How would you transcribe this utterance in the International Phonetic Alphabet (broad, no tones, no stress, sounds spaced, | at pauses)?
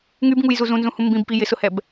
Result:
ŋ y b ŋ u j z u z ũ n z ũ h ũ m b ĩ b p i j ɪ s ʊ h ɛ b